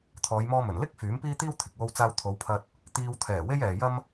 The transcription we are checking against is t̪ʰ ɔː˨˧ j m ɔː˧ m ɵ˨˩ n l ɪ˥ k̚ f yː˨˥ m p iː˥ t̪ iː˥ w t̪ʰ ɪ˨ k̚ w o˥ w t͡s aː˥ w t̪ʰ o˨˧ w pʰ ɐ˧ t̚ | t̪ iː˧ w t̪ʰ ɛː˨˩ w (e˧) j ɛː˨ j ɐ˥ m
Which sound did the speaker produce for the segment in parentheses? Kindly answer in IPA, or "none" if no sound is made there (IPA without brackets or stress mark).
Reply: e˥